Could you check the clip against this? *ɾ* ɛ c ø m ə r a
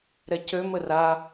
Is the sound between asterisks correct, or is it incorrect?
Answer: correct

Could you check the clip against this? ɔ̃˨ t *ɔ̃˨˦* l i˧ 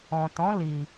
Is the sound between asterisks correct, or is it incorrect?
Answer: correct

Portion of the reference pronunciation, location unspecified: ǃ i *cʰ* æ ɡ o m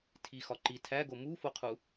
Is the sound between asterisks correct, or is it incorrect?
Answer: incorrect: tʰ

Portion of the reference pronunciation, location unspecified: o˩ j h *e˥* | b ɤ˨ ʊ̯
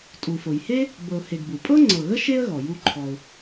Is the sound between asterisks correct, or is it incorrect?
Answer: correct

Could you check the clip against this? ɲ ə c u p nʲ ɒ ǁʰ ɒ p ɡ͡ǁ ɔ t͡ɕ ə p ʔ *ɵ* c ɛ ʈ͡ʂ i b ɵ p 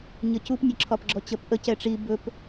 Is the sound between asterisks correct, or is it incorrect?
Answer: incorrect: ə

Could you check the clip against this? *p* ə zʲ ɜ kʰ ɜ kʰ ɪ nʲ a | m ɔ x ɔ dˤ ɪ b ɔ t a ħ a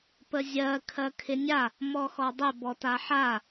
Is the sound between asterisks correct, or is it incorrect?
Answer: correct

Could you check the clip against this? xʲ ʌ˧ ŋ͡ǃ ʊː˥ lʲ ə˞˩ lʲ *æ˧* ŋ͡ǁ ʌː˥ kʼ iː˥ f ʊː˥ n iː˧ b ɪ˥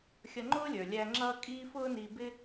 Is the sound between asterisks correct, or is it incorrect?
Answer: correct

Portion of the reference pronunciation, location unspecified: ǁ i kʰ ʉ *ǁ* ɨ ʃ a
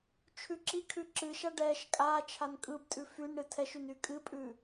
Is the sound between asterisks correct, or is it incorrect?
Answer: correct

